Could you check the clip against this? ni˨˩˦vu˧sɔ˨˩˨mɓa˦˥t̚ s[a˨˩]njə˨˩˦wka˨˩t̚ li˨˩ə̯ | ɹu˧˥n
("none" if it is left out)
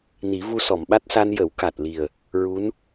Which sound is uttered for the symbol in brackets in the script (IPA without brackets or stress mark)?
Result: a˧